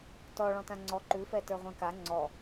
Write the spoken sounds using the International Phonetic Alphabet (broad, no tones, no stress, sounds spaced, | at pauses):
t ɔ ɭ ɔ̃ t ã ŋ͡ǀ ɔ ǃ ʉ f ɛ t ə˞ ʁʷ ɛ̃ k a ŋ͡ǀ ɔ